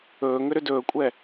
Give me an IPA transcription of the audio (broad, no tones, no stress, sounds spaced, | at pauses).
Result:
ɵː ŋ ʏ ɾ ʏ d ɵː kʷʼ ɛ